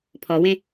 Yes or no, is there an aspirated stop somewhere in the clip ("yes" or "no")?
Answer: yes